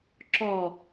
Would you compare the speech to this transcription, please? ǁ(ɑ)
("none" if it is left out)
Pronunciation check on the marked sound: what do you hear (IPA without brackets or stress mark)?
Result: ɔ